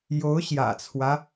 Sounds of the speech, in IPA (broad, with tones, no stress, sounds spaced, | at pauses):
j o˧˥ ʊ̯ ɕ j ä̰˨˩ t͡sʰ w ä˦